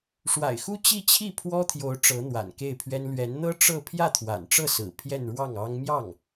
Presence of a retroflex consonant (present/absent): present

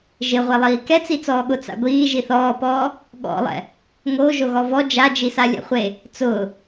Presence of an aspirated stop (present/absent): absent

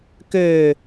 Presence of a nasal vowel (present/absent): absent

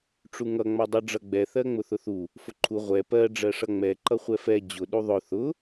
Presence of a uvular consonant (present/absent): present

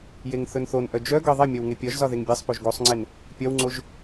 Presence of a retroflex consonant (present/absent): absent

